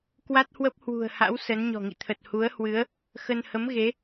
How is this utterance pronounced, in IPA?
k w a˦˥ t̚ h w ə˦˥ p̚ h w ṳ˨˩ ə̯ h a̰˧˥ w s ə˨˦ n ɲ ɔ̤˨˩ ŋ ḭ˧˨ t̪ʰ ə˨˩ t̚ h u˨˦ ə̯ h w ɨ˨˦ ə̯ | x ə˧ n h ə˨˦ m ɣ e˨˦

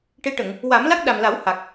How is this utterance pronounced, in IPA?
ʈ e˧˥ ʈ ə˨˩˨ ŋ | w a˨˩˦ m l a˦˥ k̚ ɗ a˨˩ m l a˨˩˦ w h a˨˩ k̚

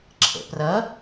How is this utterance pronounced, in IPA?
ǁʰ ə̰ p r ʌ

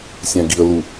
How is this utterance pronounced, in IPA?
sʲ æ̃ ɡ i ə̯ l u

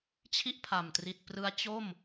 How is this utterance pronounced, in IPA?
t͡ɕʰ i˥˩ ʔ pʰ a˨˩ m t r i˨˩ t̚ p r ɯ˦˥ a̯ t͡ɕ o˥˩ m

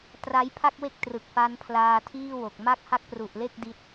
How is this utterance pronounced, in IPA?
t r a˦˥ j pʰ a˥˩ k̚ w e˥˩ k̚ t r ɯ˨˩ k̚ f a˦˥ n pʰ l aː˧ tʰ iː˥˩ w o˨˩ k̚ m a˥˩ k̚ h a˥˩ k̚ p r u˨˩ ʔ l e˥˩ k̚ d i˦˥ t̚

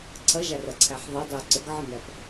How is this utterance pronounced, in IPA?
ǀʰ ɐ ʒ a r ɐ ǀʰ æ ħ ðˤ e dˤ ɨ u̯ ǀ ə ɡ ʕ ə n æ p

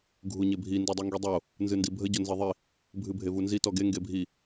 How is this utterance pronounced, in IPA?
ɡʱ u ɲ e bʱ i n d u dˤ u ŋ ɡ i dˤ o | n z ɨ n d i bʱ ə ɟ o n z e ðˤ i | bʱ ɨ bʱ e v u n z i t ɔ ɡ e ŋ ɡ e bʱ i

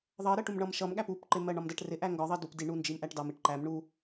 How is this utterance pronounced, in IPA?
ðˤ ʌ ɾ ɜ ʈ u m ɳ ʌ m ʃ ʌ m ɠ æ p u p ǃ ɪ m ɜ ɳ ɒ m d ɜ ʈ r ɪ ʔ æ ŋ ɡ ɒ ðˤ ɜ d u p d i ɳ u n d͡ʒ i m ʔ æ ʈ d ɑ m ɪ ʈ ǃ æ m ɳ u

